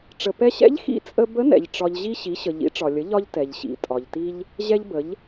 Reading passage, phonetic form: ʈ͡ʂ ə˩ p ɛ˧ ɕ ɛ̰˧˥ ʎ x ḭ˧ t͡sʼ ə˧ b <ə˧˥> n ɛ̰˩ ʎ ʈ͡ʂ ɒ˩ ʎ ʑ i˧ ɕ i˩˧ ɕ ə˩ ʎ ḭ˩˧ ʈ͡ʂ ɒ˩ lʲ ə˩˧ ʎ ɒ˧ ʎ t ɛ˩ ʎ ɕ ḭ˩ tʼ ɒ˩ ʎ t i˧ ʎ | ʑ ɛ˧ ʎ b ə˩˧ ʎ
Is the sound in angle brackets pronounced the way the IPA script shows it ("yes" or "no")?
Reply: yes